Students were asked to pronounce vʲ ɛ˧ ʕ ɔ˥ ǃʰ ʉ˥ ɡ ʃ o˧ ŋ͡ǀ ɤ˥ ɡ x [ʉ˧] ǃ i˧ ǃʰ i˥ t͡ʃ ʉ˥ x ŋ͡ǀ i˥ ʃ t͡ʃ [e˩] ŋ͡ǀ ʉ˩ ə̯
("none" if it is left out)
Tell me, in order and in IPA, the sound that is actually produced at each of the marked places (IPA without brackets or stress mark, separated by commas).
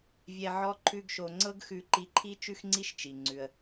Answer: ʉ˧, i˩